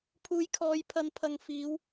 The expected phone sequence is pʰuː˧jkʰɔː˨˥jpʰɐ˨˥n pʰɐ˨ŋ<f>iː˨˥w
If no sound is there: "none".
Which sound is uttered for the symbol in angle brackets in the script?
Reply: f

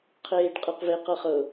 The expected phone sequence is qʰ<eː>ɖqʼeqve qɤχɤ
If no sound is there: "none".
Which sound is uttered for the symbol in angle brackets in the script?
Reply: eː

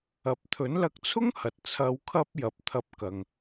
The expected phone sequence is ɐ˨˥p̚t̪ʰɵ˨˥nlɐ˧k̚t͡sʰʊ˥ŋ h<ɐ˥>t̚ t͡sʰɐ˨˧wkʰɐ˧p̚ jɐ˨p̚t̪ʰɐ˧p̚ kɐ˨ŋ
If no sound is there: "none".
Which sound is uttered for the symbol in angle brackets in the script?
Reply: ɐ˨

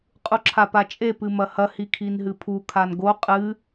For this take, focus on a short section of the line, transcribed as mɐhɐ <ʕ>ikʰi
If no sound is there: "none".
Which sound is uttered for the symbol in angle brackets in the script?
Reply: h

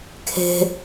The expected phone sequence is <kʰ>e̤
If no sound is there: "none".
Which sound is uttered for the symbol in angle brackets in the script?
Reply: kʰ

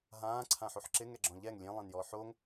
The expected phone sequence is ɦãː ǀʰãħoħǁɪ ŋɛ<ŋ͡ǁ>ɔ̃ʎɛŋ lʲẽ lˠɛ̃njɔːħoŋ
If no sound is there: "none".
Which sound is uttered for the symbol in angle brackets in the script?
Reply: ɡ͡ǁ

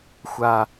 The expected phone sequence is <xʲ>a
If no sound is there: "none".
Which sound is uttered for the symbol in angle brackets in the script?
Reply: xʷ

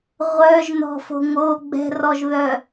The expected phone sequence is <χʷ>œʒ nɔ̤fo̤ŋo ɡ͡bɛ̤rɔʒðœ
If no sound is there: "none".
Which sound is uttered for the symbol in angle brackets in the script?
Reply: ʁʷ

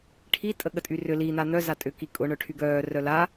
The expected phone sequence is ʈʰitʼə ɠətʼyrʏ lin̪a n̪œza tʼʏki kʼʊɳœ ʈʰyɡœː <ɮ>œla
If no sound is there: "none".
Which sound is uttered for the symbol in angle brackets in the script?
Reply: r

